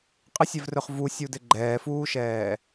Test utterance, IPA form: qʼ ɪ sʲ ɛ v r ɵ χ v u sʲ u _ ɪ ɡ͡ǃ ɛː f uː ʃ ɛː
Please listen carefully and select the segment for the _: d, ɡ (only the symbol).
d